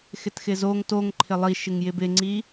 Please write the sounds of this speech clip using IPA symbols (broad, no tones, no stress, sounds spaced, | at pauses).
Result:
x ɪ t x ɪ z o ŋ t o ŋ ǃʰ ɪ lˠ i ʃ ɪ ŋ j ɪ b ɪ ŋ͡ǀ i